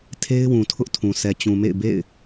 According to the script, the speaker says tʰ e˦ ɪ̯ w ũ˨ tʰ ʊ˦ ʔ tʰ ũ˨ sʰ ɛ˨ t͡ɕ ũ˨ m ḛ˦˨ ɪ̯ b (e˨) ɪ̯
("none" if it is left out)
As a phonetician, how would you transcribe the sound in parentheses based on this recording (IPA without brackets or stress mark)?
ḛ˦˨